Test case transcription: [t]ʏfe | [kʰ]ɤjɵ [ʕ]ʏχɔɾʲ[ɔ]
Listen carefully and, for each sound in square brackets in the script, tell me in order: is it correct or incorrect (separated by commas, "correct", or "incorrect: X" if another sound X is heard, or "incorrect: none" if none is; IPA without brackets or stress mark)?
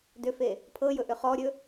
incorrect: d, incorrect: pʰ, incorrect: ʔ, incorrect: ɵ